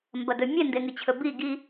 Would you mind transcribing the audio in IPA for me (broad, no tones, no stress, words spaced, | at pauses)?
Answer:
mbɐdɵmʲe ndeŋɨt͡ɕʰɵbi ɡi